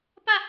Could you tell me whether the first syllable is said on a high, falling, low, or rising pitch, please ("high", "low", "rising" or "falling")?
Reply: falling